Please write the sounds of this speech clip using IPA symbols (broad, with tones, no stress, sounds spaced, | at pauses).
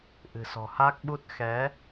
ʔ ɨ̤˨˩ s ɔ̤˨˩ h a˦˥ k̚ ɓ u˦˥ t̚ x ɛ˨˦